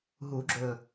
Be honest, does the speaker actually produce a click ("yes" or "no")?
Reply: yes